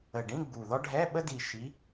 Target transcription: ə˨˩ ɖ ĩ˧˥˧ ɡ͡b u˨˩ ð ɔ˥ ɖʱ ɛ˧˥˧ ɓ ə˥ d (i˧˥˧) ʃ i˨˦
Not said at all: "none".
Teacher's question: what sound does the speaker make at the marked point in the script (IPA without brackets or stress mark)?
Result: i˨˩